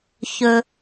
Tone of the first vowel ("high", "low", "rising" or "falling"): low